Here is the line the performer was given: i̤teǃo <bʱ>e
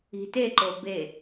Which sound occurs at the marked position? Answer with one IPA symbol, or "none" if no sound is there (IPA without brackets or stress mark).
b